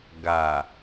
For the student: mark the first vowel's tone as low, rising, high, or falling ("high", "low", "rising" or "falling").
low